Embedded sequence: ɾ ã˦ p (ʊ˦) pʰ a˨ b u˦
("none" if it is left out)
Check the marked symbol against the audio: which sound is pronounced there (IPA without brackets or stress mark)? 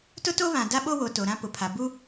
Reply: ʊ˨